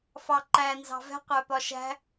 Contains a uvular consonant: yes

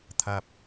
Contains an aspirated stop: yes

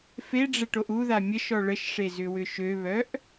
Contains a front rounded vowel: yes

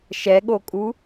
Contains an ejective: yes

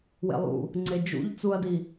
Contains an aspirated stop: no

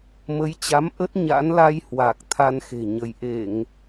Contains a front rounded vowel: no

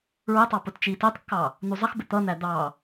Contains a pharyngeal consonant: no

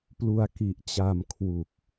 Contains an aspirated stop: yes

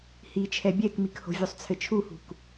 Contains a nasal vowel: no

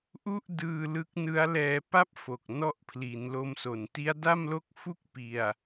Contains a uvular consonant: no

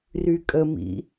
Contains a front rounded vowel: yes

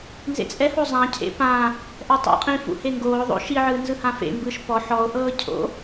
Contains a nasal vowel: yes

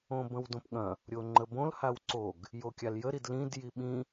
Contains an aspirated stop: no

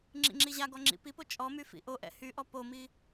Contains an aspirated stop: no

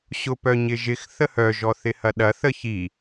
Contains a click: no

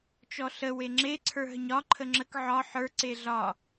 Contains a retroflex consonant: no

